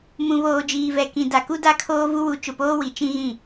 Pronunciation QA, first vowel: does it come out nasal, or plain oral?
nasal